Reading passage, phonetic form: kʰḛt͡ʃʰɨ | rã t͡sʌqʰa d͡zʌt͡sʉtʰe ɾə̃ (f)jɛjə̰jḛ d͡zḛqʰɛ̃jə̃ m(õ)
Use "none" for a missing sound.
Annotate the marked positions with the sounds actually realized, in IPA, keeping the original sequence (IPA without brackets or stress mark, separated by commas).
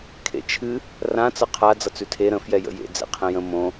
f, õ